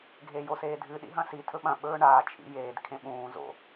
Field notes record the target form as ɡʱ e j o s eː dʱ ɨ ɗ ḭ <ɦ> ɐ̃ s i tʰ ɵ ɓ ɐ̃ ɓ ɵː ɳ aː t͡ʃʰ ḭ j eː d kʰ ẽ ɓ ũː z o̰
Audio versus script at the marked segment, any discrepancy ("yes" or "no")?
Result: no